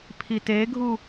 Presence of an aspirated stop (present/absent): present